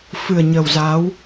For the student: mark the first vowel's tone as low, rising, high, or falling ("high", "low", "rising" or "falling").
low